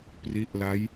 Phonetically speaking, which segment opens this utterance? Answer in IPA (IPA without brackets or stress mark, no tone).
p